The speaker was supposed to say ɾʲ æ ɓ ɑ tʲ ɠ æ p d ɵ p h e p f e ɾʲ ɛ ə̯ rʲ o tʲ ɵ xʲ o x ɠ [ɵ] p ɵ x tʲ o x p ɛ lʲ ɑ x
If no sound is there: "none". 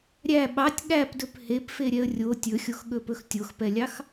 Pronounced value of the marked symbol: ɵ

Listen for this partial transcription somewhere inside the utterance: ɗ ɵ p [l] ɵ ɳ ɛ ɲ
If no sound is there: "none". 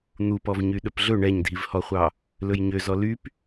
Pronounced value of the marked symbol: ɮ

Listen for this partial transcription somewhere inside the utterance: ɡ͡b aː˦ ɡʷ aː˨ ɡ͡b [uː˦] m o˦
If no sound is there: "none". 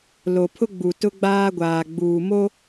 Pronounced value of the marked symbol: uː˨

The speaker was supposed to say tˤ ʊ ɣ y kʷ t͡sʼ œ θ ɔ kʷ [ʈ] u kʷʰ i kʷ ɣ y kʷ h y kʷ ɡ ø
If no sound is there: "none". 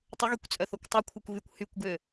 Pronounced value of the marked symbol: tˤ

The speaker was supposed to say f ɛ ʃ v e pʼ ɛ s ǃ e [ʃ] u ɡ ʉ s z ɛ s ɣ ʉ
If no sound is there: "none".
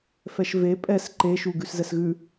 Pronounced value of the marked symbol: ʃ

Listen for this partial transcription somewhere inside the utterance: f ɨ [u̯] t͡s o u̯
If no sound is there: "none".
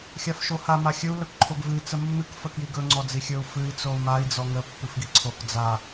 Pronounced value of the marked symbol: i̯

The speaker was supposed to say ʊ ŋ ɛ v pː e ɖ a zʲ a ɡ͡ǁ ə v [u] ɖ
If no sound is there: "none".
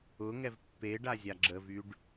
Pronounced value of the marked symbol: y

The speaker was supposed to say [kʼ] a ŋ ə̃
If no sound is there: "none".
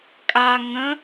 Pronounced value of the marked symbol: kʼ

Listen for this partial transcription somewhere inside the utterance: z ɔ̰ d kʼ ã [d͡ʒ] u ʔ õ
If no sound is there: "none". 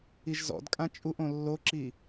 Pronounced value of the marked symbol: t͡ʃʼ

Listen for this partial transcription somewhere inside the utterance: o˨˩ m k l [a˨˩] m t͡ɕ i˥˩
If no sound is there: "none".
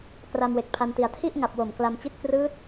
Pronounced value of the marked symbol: a˧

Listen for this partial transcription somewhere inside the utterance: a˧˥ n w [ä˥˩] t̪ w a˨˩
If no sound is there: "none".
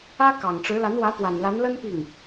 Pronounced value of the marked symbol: ä˧˥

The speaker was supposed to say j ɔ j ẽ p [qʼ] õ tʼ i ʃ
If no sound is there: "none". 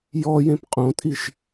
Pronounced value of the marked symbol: qʼ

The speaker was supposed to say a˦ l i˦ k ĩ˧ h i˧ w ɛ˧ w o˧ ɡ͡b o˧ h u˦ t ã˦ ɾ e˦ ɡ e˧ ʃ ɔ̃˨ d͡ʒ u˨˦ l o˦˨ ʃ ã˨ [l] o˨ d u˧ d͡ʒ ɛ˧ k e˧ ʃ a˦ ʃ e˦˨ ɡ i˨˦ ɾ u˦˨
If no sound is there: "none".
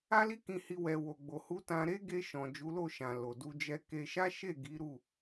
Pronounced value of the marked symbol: l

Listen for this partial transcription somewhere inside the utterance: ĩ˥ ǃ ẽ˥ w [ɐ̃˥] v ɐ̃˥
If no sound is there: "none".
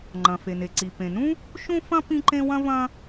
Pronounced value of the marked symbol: ɐ̃˥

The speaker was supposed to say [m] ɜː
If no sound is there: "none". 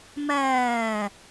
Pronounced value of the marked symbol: m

